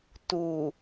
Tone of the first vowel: low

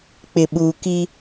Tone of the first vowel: low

